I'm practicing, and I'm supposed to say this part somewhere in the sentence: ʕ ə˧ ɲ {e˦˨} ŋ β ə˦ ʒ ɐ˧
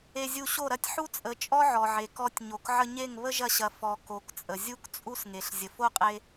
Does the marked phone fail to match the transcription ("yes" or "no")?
no